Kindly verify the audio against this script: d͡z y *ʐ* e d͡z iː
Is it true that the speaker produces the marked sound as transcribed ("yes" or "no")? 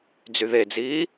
no